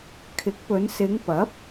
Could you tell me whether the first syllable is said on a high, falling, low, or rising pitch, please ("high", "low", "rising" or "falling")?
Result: rising